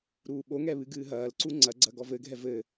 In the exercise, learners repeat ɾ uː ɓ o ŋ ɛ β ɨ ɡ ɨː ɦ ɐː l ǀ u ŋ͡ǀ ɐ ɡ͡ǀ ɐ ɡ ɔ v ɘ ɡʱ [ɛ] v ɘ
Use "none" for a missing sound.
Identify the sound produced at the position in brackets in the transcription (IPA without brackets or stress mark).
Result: ɛ